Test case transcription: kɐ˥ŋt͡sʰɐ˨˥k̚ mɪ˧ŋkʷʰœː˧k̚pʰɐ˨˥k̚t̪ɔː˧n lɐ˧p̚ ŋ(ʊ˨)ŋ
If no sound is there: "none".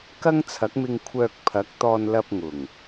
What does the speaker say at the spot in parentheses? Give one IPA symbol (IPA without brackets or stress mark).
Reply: ʊ˨˩